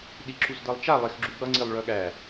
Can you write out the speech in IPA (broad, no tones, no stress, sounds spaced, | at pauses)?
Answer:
ɗ i ǁ u z d ʌ lˠ t͡ʃ a lˠ e x ɡ͡ǁ u ɠ ʌ ŋ͡ǀ i lˠ ɭ œ ɠ æ